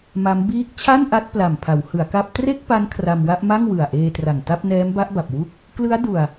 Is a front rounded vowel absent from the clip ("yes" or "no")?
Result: yes